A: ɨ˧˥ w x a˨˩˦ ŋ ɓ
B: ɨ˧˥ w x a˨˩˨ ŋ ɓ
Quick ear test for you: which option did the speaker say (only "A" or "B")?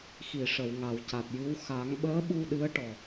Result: A